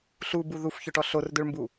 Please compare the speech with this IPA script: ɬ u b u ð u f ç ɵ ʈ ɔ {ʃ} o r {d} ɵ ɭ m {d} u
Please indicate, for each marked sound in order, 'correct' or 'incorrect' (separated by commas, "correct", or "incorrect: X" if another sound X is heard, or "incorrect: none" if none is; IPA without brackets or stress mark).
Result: incorrect: ɬ, correct, incorrect: b